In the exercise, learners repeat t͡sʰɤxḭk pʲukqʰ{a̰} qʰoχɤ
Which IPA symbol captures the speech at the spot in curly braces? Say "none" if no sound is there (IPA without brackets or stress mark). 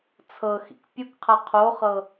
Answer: a